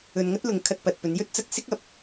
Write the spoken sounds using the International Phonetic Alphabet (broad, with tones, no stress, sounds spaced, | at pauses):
ɵ˧ n ŋ ɐ˥ t̚ l ʊ˨˧ ŋ kʰ ɐ˧ t̚ p ɐ˨ t̚ p ɵ˨˧ n j ɵ˥ t̚ t͡s ɐ˧ k̚ s ɪ˥ k̚ ɐ˨˥ p̚